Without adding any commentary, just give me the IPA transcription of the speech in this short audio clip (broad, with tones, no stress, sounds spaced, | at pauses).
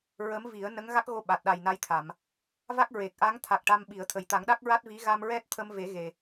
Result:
ɹ ə˧˥ m v i˨˩˦ ə̯ n ə˧˥ ŋ ɣ a˦˥ k̚ ɣ o˧ ɓ a˨˩ t̚ ɗ a˨˩ j n a˧˥ j t̪ʰ a˨˩˨ m | v a˦˥ k̚ ɹ e˨˩ k̚ ʔ a˧˥ ŋ t̪ʰ a˨˩ k̚ ʈ a˧ m ɓ i˨˩˦ ə̯ t̪ʰ ə˨˩ j t̪ a˨˩˦ ŋ ɗ a˦˥ k̚ ɹ a˦˥ t̚ v i˧˥ ɣ a˧ m ɹ ɛ˦˥ t̚ t̪ʰ ə˧ m v e˨˩˦ ɣ e˨˩